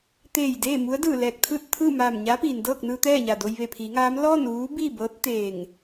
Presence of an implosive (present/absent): absent